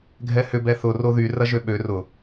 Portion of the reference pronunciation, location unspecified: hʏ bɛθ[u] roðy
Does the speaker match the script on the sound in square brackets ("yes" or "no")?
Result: no